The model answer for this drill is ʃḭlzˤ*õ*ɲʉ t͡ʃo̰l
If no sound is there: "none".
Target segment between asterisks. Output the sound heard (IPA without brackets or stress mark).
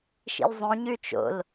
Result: õ